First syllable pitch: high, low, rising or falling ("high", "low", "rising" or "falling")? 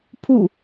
falling